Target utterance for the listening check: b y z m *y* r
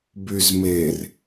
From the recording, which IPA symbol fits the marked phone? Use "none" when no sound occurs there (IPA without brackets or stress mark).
e